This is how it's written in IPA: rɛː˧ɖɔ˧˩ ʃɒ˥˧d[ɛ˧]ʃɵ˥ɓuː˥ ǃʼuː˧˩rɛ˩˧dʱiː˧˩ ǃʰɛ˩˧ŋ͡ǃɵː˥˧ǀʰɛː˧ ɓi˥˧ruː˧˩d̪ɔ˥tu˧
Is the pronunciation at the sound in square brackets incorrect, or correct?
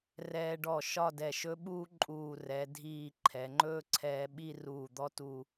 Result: incorrect